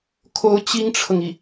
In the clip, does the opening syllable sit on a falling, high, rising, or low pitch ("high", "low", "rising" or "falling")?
rising